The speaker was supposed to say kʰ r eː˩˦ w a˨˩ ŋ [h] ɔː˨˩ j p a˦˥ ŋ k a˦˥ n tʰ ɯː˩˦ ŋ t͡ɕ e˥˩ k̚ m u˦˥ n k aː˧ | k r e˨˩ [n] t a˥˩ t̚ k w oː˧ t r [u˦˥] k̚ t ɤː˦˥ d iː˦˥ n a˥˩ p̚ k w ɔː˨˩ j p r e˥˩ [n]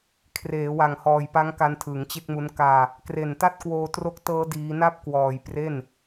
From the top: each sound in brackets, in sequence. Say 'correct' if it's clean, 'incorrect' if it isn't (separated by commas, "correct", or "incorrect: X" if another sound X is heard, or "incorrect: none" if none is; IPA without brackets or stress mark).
correct, correct, incorrect: o˦˥, correct